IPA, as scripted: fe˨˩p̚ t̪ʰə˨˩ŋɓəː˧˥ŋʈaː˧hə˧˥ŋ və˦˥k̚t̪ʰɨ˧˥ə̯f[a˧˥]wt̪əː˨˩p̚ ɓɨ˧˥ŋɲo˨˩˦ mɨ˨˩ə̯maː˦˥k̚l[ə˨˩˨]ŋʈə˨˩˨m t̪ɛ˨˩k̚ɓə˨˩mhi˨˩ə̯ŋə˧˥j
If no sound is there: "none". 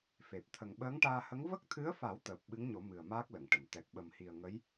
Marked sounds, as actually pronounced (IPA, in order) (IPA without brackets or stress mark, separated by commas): a˨˩˦, ə˨˩˨